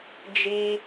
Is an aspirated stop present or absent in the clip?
absent